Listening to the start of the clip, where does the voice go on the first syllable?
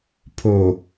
low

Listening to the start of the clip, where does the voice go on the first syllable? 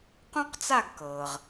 high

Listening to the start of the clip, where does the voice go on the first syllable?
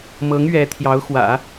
rising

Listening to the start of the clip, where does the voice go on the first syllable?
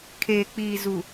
low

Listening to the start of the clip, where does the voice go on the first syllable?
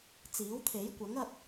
rising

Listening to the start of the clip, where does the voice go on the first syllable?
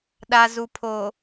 low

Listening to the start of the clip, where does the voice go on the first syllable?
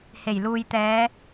low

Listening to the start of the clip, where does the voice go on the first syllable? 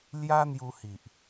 high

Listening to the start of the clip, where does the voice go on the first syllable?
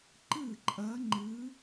falling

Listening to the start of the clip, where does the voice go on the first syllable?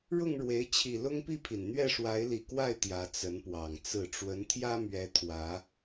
falling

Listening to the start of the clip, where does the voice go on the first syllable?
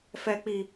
high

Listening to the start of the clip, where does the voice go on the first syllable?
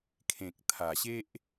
low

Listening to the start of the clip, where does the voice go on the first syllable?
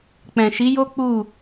low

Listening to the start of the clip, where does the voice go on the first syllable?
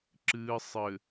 low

